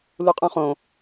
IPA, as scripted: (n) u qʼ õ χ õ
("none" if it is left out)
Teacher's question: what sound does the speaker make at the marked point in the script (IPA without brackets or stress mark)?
l